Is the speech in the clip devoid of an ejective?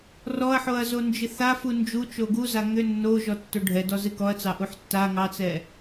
yes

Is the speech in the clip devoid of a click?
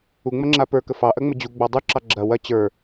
no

